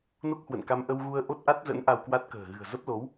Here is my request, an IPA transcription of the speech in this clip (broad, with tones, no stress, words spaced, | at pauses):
no˦˥k̚hwə̰˧˨nka˧m ʔə˧w ɣu˧ə̯ ʔo˦˥t̚ʔa˦˥t̚zə̰˧˥n ʔa˧wkwa˦˥t̚kə̤ː˨˩ ɣɨ̤˨˩ə̯zə˦˥p̚lo˨˦w